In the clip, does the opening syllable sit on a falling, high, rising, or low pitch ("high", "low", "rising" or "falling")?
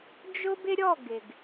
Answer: high